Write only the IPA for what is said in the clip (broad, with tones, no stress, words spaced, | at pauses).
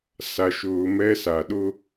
sa˧ʃʊː˧mɛ˥sa˩ ɗʊ˥